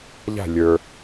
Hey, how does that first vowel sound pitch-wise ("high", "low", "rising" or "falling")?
falling